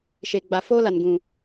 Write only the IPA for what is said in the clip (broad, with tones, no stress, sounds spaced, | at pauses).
ʃ e˨ ɡ͡b a˨ f o˦ l a˨ n ɡ ũ˨